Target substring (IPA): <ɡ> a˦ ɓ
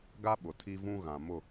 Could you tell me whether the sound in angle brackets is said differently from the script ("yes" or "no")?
no